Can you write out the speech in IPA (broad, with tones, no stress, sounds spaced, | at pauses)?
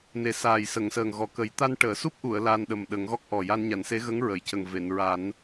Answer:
n e˨˩ s aː˨˩ j s ə˨˩˨ ŋ s əː˨˩ ŋ ɣ ɔ˨˩ k ə˨˩˦ j t̪ a˧ n ʈ əː˨˩˨ s u˦˥ p̚ ʔ u˨˩˨ ə̯ l aː˧ n ɗ ə˨˩ m ɗ ə˨˩˦ ŋ ɣ ɔ˦˥ k̚ ʔ ɔ˨˩ j a˧ n ɲ a˨˩˨ n s e˧˥ ɣ ə˧˥ ŋ ɹ ə˨˩˨ j c ə˨˩ ŋ v e˨˩˨ n ɹ a˨˩˦ n